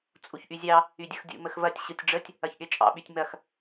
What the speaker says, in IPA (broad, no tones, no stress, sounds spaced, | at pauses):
t͡sʼ u ç ʔ y zʲ ɑ | y dʲ ɯ x dʲ ṵ m ə x v ɐ tʲ ɕ ɯ tʲ ɖ͡ʐ ə tʲ | ɐ ç ɠ e t͡ʃʼ ɑ̰ ɓ y tʲ m ɐ x